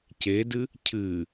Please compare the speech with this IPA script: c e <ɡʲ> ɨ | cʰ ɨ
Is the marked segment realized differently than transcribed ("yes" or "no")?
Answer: yes